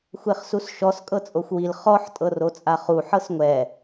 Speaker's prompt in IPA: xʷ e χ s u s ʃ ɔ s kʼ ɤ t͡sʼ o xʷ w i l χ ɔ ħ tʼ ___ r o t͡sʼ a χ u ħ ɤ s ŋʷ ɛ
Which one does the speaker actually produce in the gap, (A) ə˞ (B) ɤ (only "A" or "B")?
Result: B